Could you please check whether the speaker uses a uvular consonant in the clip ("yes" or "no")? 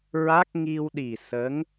no